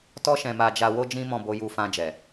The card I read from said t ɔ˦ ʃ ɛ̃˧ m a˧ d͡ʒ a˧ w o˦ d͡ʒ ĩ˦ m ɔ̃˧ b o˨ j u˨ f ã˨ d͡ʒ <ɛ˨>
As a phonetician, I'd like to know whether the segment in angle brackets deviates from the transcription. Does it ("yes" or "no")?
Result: no